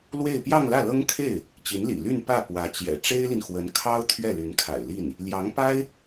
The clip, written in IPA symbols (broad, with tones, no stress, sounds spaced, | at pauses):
l w e˥˧ ɪ̯ p j ɑ˥˧ ŋ l ä˥˩ l ɤ˥ ŋ kʰ e˥˩ ɪ̯ | t͡ɕ i˧˥ n l ḭ˨˩ l y˥˧ n p ä˥˩ p w ä˧˥ t͡ɕ j ɛ̰˨˩ ʈ͡ʂ e˥ ɪ̯ l i˨ n x w ə˧˥ n kʰ ɑ˥ ʊ̯ t̪ʰ ɥ ɛ˥˩ l y˧˥ n kʰ a̰˨˩ ɪ̯ l i˥˩ n | l j ɑ˧˥ ŋ p a˥ ɪ̯